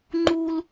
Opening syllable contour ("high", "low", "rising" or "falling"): high